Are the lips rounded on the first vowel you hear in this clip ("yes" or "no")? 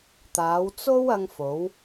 no